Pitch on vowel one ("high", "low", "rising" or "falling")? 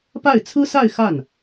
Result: falling